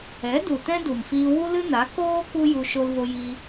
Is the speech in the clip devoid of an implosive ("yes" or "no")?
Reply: yes